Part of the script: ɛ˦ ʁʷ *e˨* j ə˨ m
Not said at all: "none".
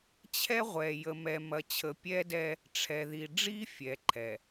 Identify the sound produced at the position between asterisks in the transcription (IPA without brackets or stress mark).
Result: ɛ˨